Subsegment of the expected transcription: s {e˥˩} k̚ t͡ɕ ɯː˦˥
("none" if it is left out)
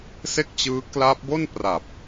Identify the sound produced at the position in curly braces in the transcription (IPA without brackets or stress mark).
e˥˩